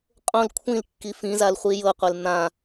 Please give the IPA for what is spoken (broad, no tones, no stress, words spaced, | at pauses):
qʼõl kʷʰĩlkːi fĩzal χʷijɤqʷel n̪ã